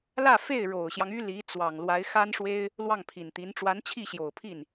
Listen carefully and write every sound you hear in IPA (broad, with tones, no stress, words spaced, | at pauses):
lä˥˧fe˥˩ɪ̯ ɻo˨˩ʊ̯ɕjɑ˦ŋ y˥li˧˥ t͡swɑ˨˩ŋlwa˧˥ɪ̯ xa˥nʂwe˥ɪ̯ | lwɑ˥˩ŋpʰi˨˩nt̪i˧˥n ʈ͡ʂwa˧˥nt͡ɕʰi˥˩ɕjo˨˩ʊ̯pʰi˥˩n